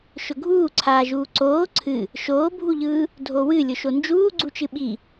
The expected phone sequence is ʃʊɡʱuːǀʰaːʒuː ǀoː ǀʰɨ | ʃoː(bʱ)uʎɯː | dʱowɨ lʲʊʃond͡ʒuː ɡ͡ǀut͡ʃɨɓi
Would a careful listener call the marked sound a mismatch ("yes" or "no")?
no